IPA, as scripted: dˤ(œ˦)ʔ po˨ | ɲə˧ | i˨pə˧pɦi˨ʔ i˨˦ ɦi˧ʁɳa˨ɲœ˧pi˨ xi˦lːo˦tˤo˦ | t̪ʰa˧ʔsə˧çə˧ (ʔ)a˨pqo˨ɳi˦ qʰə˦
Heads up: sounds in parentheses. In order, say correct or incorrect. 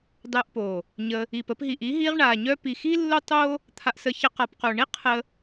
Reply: incorrect: œ˧, incorrect: q

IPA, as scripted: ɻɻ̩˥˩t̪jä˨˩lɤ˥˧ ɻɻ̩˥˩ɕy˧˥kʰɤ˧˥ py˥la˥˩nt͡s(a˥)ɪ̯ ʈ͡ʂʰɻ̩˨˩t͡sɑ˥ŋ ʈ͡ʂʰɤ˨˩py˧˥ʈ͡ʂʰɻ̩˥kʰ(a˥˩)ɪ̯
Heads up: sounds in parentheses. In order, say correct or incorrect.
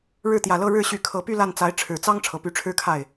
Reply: incorrect: a˧˥, correct

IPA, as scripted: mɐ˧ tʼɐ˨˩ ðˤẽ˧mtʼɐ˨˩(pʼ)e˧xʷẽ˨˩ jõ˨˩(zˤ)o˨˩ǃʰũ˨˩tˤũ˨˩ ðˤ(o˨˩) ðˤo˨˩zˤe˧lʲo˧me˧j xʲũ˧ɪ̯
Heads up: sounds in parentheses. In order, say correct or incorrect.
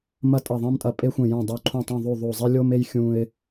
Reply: correct, incorrect: dˤ, correct

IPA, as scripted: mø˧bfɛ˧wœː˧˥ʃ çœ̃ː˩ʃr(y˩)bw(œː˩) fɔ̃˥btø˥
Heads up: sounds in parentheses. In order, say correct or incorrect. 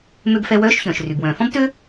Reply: correct, incorrect: œ̃ː˩

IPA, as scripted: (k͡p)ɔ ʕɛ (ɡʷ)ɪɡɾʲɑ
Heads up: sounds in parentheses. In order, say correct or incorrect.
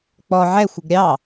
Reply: correct, incorrect: xʷ

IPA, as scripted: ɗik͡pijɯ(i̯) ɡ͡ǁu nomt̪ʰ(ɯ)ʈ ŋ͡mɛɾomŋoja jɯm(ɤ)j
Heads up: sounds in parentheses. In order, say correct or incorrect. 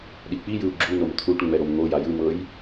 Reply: incorrect: u̯, incorrect: u, correct

